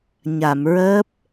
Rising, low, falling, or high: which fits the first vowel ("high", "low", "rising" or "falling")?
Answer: low